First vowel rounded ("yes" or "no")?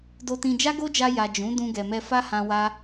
yes